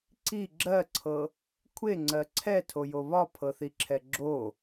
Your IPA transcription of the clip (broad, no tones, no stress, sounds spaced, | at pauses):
ǀ i ɡ͡ǁ ɜ ǀʰ ɤ | kʷʰ e ŋ͡ǀ ɜ ǀʰ ɛ tʰ o j o β ɒ pʰ ɤ θ i ǁʰ ɛ ɡ͡ǁ o